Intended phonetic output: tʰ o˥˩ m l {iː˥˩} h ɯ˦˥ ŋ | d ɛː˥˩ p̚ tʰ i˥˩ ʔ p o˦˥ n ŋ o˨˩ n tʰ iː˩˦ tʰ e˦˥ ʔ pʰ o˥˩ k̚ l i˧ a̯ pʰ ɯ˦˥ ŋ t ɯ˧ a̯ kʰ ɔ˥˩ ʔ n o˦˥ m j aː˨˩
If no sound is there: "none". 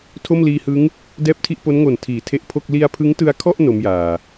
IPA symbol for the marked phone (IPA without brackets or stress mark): iː˧